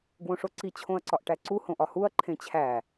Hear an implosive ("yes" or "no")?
no